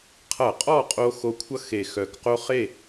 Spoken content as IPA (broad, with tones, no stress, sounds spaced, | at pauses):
qʰ ʌ˧˩˧ qʼ ɔ˥˨ qʼ o˧ x o˧ kʷʰ ʌ˥˨ x e˧˩ x œ˧˩ k q o˥ χ e˥˨